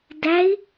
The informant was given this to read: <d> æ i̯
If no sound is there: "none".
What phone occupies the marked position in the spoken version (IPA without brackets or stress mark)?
d